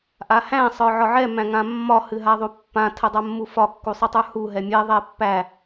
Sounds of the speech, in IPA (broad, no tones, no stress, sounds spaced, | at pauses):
ʔ a h æ̃ sˤ ə˞ ʕ ɒ ʕ ɛ m æ̃ ŋ ã mː ɒ h ɨ ɦ a ðˤ u pː ã tʰ ə dˤ a mː u f ɒ kː u sˤ ɨ tˤ ə˞ h u ɦ ɛ mʲ ɛ ðˤ ɛ pː æ